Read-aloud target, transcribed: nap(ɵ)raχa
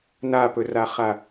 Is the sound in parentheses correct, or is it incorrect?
correct